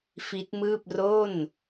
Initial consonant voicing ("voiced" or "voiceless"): voiceless